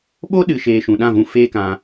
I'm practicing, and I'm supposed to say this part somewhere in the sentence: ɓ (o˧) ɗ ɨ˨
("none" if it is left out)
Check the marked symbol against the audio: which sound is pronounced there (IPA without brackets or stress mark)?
o˦